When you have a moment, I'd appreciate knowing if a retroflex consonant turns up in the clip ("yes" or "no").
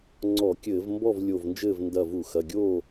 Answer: no